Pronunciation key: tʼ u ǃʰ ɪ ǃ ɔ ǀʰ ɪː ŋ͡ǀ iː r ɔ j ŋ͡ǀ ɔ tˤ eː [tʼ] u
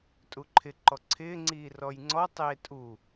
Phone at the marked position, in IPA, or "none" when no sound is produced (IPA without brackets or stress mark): tʼ